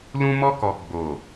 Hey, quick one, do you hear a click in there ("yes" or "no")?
no